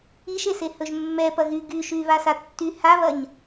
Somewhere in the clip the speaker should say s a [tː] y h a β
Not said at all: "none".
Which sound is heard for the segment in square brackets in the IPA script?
tː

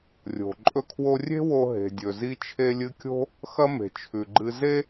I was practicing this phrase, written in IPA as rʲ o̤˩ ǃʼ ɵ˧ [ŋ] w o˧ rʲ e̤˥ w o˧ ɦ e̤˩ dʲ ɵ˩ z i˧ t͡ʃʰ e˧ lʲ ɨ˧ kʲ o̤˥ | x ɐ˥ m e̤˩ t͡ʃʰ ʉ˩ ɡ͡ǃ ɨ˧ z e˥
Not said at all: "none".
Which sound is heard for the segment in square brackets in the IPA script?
kʰ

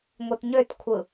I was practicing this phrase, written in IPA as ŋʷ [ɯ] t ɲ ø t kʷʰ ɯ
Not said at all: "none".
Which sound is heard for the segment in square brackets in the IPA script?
ɯ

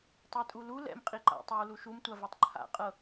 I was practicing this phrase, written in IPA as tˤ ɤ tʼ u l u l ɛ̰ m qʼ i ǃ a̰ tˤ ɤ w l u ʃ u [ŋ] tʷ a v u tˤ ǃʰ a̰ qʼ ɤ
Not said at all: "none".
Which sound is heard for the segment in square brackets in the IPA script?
m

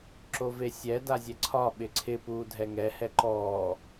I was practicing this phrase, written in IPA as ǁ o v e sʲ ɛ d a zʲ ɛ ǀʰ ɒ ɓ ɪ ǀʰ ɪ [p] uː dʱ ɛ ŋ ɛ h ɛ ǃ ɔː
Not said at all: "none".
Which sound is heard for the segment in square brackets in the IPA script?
p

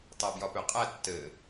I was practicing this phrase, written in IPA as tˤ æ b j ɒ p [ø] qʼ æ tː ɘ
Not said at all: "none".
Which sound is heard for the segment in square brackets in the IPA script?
ø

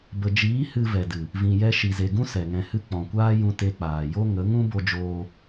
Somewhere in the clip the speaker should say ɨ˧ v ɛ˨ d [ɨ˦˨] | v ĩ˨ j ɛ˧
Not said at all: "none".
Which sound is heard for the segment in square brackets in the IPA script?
ɨ˨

